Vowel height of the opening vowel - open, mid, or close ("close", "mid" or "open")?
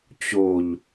mid